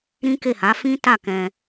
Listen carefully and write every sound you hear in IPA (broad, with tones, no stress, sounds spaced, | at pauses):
ɾ ĩ˦ k e˦˨ h a˨˦ f ĩ˦ t a˦˨ k ɛ̃˧